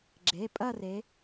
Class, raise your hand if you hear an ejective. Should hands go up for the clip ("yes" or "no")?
yes